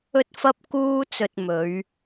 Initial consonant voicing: voiceless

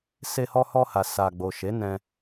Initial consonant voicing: voiceless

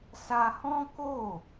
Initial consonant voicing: voiceless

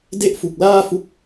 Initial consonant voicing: voiced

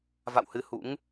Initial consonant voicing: voiced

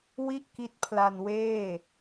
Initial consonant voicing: voiced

